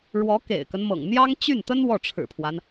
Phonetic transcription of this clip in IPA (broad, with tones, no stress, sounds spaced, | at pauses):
ɻ w ɔ˧˥ k ḛ˨˩ ɪ̯ k ə˦ n m ɤ̰˨˩ ŋ n̪ j ɑ˥ ŋ t͡ɕ y˥˩ n t̪ ə˥ n w ɔ˥˩ ʈ͡ʂʰ ɻ̩˨˩ pʰ w a˦ n